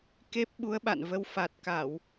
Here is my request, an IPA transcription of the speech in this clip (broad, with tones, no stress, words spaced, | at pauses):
ke˦˥p̚ ɓu˨˦ə̯ɓa̰˧˨nvə˨˦w fa˨˩t̚ka˧˩˨w